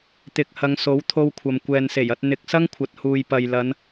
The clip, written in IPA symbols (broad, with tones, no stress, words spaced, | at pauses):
t̪ɪ˧k̚ hɐ˨˧ŋso˨˥w t̪ʰo˧wkʷʰɐ˨m kʷɛː˨nse˨˩jɐ˧t̚ n̪ɪ˨k̚ sɐ˥ŋkʷʰɐ˨t̚huː˨j pɐ˨jlɐ˨˧n